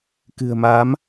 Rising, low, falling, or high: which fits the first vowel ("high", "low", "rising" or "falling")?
low